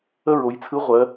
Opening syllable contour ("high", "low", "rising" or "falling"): high